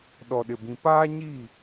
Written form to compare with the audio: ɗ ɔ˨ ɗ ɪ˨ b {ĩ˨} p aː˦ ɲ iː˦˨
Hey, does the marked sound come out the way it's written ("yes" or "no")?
yes